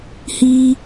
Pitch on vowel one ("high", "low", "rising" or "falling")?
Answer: high